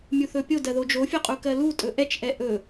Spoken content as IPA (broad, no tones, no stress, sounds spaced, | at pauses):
mʲ u θ ɵ pʲ o d ɜ ð o d͡ʒ o fʲ o qʼ u k ɜ l u tʼ ɵ ʔ ɛ t͡ʃ ʔ ɛ ʔ ɵ